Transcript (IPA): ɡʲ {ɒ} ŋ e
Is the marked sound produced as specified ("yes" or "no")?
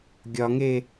yes